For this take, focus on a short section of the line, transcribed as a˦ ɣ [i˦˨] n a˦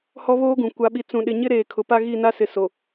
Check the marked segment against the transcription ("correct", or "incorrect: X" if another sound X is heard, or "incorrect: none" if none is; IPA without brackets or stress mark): correct